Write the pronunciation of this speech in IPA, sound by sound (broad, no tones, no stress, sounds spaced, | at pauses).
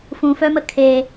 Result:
f ũ f œ m ə kʰ e